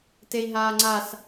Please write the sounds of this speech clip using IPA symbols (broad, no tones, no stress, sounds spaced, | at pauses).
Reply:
t e i̯ ɦ aː ŋ͡ǀ a s